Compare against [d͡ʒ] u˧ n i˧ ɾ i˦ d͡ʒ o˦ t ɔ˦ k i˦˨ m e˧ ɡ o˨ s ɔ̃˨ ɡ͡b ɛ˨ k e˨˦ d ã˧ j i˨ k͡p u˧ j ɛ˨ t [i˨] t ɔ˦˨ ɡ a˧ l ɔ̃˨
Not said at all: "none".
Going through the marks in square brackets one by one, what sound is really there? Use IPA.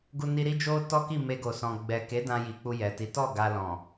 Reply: ɡ, i˨˦

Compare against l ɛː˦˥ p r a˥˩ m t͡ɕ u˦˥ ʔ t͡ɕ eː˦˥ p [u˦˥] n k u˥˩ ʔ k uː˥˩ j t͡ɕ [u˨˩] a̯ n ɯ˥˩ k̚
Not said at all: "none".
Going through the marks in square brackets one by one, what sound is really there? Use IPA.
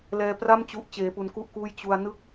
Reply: u˦˥, u˧

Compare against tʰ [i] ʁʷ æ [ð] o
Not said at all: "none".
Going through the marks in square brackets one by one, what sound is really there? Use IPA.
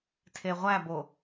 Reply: e, b

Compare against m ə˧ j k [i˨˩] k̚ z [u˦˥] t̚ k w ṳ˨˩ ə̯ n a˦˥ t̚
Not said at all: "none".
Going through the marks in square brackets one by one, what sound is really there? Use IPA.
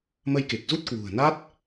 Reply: e˨˩, u˦˥

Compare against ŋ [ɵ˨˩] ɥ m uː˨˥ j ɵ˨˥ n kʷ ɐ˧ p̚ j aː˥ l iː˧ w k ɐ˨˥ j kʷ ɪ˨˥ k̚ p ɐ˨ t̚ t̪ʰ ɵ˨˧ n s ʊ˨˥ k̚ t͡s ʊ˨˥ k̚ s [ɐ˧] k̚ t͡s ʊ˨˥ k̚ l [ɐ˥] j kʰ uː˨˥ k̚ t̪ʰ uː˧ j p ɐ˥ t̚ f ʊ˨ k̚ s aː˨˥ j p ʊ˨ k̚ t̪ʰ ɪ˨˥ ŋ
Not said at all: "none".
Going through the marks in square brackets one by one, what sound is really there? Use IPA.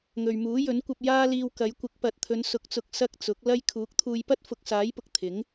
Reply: ɵ˨, ɐ˧, ɐ˥

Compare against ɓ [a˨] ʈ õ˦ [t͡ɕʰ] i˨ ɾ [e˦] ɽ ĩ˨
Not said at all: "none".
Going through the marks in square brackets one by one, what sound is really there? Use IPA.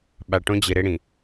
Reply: a˨, d͡ʑ, e˦

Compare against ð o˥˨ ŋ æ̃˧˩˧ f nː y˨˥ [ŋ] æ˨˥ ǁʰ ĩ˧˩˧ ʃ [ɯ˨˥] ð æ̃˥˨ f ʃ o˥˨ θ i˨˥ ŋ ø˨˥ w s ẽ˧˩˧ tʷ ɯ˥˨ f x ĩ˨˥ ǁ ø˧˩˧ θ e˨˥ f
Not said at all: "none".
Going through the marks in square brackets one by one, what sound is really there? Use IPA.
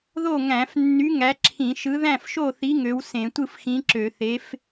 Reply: ŋ, ɯ˨˥

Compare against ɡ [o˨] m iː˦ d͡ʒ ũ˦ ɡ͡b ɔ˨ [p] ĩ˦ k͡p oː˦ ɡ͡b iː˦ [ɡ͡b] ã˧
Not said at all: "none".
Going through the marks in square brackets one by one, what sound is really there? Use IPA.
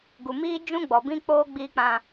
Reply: u˨, b, k͡p

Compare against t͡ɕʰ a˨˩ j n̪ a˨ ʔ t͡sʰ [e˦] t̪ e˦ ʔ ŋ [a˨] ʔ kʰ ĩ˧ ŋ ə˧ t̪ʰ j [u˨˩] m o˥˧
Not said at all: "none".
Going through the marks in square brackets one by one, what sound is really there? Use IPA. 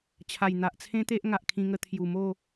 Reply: ẽ˦, a˨, u˨˩

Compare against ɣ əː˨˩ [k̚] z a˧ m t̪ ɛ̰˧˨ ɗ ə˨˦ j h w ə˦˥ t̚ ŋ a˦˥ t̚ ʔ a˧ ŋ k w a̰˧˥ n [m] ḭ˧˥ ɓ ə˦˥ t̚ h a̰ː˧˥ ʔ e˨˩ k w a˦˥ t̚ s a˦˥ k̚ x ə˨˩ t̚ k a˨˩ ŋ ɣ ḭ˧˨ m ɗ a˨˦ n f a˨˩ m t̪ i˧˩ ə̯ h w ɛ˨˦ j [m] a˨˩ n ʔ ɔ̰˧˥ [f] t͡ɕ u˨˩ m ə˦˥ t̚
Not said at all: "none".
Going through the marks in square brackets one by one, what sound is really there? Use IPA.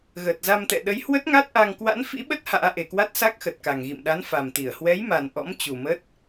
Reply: t̚, f, m, m

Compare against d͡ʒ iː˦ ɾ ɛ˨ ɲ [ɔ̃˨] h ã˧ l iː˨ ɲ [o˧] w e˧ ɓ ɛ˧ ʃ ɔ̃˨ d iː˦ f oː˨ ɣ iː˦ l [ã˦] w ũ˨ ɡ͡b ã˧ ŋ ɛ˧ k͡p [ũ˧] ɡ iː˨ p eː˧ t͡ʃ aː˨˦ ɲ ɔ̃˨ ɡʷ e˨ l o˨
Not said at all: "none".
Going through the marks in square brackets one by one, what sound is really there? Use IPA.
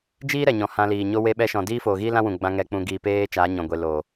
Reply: ɔ̃˨, o˦, ã˦, ũ˧

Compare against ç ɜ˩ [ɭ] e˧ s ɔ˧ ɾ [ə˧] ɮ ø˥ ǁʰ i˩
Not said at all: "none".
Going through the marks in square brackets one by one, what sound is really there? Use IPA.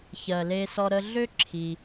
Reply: l, ə˧

